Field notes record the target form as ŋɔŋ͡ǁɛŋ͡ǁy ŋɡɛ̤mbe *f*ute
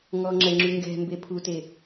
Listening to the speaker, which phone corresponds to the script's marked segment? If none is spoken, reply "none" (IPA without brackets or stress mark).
pʰ